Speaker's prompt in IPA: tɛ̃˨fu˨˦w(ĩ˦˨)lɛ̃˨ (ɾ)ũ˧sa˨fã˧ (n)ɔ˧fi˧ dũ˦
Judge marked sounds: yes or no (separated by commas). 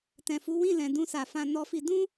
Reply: yes, no, yes